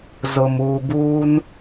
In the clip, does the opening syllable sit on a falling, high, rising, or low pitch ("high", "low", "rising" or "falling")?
low